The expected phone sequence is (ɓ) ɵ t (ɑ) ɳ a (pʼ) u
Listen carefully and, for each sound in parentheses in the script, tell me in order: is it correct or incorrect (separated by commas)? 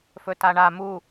incorrect, incorrect, incorrect